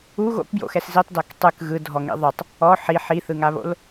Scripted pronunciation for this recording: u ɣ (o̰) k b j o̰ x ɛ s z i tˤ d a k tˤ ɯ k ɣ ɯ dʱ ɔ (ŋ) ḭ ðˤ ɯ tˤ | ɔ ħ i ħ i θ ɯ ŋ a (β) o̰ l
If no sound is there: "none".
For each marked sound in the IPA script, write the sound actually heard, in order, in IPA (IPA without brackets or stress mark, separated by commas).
o̰, ŋ, β